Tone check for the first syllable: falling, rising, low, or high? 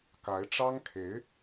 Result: rising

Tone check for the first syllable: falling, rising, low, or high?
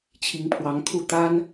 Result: rising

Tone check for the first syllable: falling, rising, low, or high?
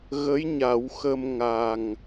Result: rising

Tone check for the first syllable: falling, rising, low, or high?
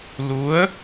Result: rising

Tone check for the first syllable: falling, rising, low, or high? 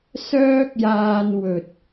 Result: high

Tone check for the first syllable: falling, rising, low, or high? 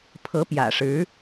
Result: rising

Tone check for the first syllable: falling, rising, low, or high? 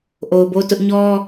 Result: low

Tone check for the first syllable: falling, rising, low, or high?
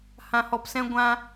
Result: low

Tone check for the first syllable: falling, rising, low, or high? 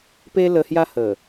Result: high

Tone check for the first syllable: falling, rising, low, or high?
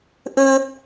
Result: high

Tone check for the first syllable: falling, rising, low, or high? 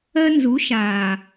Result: high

